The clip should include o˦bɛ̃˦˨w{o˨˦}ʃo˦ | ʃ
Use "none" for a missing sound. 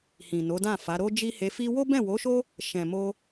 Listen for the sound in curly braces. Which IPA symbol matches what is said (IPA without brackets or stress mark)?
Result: o˨˦